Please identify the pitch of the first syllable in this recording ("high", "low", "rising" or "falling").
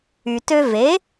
low